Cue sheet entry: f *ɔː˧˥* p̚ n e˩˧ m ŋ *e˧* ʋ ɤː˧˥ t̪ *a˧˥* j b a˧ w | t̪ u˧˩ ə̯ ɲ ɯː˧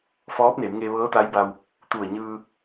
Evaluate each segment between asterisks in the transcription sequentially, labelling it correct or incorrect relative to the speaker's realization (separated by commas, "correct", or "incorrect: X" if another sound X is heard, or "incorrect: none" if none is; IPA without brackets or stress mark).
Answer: correct, correct, correct